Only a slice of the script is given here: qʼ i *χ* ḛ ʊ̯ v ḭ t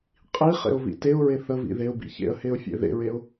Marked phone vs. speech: correct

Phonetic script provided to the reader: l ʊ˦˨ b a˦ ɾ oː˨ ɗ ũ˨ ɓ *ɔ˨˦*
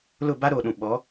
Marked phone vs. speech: correct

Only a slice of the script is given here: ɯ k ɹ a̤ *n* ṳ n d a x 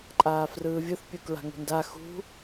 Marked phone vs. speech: incorrect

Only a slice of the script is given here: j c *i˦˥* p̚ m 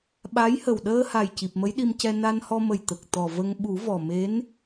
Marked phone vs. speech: incorrect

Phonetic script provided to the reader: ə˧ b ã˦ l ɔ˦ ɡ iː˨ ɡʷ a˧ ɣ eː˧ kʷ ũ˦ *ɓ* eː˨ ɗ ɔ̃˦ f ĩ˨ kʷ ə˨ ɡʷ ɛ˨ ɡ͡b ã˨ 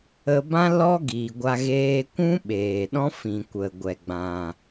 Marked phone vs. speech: correct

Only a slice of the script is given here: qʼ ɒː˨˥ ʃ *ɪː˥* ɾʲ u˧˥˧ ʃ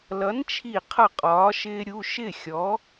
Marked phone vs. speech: correct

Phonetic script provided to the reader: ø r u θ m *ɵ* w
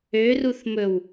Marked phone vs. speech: correct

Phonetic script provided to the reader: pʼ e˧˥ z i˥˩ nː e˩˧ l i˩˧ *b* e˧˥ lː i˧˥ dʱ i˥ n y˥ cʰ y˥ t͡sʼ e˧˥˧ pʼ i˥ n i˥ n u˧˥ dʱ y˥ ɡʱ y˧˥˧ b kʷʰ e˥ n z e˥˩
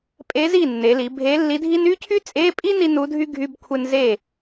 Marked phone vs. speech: incorrect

